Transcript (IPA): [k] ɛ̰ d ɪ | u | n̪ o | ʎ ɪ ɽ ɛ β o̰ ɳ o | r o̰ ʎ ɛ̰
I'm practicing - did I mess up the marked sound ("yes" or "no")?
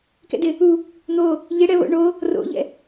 no